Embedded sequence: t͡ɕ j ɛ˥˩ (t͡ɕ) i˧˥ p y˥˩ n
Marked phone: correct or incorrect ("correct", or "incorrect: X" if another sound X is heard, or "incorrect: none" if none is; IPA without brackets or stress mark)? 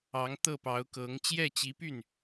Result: correct